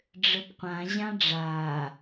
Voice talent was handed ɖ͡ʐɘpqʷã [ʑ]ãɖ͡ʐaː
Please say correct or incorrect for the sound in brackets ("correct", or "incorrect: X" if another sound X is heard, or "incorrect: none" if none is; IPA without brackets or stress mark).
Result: correct